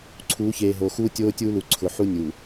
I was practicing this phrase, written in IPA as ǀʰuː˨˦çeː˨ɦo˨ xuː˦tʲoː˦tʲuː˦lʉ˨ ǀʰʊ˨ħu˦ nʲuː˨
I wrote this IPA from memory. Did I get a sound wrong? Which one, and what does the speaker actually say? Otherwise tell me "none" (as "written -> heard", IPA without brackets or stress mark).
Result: ʉ˨ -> u˨